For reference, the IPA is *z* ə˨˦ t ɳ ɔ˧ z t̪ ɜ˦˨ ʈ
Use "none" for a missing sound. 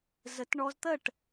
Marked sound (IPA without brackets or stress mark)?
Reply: z